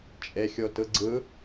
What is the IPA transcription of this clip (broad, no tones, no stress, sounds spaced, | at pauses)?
t͡ʃʼ e xʲ o t ɯ ɡ͡ǀ ɯ